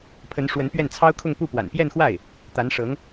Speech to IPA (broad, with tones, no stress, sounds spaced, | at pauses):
pʰ ə˧˥ n ʂ w ə˧˥ n p ɥ ɛ˥˩ n t͡sʰ ɑ˥ ʊ̯ kʰ ʊ˥˧ ŋ p u˥˩ p w a̰˨˩ n p j ɛ˥˧ n x w a˥˩ ɪ̯ | t̪ a˧˥ n ʂ ɤ˧˥ ŋ